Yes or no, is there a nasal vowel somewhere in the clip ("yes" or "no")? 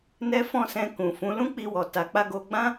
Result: yes